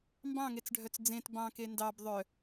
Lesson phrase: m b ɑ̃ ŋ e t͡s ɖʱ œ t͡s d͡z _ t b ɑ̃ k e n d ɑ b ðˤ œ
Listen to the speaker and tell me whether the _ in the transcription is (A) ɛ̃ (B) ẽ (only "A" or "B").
B